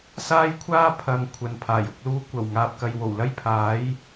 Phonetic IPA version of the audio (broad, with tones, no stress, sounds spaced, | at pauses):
s aː˥ j kʷʰ aː˥ pʰ ɐ˨˧ ŋ kʷʰ ɐ˨ n pʰ aː˨˩ j ʊ˧ k̚ l uː˧ kʷ ɐ˨˩ w ŋ aː˨ p̚ k ɐ˨ j w o˨˩ w l ɐ˥ j pʰ aː˨˥ j